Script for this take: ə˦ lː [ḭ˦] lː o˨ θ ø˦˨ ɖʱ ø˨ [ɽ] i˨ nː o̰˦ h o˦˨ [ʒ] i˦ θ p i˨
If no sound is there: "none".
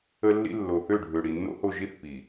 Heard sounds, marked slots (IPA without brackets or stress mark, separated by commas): ḭ˦, ɽ, ʒ